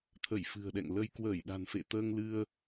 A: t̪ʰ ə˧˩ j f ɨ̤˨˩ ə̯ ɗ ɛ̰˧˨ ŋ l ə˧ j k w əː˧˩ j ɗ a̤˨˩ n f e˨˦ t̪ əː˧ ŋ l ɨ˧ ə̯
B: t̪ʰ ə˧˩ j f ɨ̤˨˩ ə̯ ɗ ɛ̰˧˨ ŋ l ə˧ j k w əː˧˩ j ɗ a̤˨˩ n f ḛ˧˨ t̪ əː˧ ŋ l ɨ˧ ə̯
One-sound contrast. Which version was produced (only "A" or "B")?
B